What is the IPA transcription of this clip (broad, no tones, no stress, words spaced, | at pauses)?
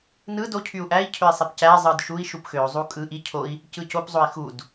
nɯ do cʰyu̯ʔæi̯cʰøi̯ sˤepcæ zˤɯdʃui̯ ʃupxøu̯ zˤukʼɯ ʔi cʰoi̯ | cɯcop zˤoi̯xud